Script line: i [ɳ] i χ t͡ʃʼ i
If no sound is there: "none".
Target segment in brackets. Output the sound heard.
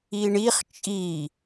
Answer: ɳ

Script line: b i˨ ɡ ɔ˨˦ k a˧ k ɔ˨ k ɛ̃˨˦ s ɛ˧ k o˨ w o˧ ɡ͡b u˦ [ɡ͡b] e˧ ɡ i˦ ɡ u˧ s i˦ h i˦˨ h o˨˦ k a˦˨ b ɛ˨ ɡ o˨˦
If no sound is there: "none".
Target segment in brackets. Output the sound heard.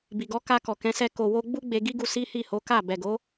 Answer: ɡ͡b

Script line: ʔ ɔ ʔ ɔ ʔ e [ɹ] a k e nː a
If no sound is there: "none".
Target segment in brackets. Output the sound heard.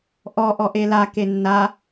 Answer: l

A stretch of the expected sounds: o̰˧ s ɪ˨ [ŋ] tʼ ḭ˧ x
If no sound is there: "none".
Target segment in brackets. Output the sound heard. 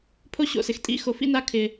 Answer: x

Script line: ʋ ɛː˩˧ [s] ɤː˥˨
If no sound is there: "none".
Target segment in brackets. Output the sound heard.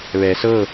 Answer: s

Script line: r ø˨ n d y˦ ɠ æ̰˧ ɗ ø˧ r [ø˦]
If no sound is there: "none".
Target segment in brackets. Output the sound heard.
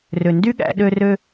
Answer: ø˧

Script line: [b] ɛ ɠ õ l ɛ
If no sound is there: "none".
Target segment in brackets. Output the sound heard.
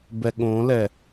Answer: b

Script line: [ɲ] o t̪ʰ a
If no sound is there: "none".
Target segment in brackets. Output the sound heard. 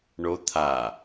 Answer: ɳ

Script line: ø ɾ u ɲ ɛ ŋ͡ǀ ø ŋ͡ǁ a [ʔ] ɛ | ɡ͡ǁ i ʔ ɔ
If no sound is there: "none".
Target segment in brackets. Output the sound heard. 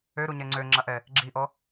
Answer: ʔ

